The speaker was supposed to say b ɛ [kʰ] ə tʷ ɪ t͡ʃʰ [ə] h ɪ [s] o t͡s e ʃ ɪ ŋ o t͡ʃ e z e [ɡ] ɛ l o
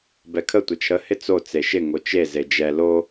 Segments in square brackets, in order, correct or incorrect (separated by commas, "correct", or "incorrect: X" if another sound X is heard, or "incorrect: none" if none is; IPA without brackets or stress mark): correct, correct, incorrect: t͡s, incorrect: d͡ʒ